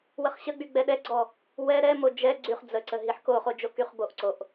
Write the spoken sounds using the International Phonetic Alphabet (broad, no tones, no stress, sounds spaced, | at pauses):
w ə χ ɕ ə ɡ͡b y ɡ͡b ɛ ɗ ɛ ɡ͡ǀ ɔ | w ɛ ɾ ɛ m o d͡ʒ ɛ ɡ͡ǀ y χ d͡z ə ǀ ə ɦ i ħ k o χ o d͡ʒ o k y χ b o ʔ ǀ o ʔ